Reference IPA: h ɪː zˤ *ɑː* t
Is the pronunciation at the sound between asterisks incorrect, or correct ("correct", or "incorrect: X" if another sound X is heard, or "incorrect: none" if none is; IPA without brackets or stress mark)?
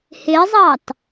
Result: correct